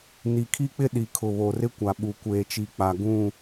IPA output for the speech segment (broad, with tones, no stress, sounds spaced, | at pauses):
n i˨ kʰ i˦ k͡p ɪ˦ ɗ i˨ kʰ ʊ˨ β o˨ r ɪ˦ kʷ a˨ ɓ u˨ kʷ eː˨ t͡ʃ i˨ k͡p a˨ ɡ ũ˦˨